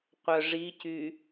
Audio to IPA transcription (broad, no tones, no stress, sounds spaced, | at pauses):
qʷ œ ʐ i c y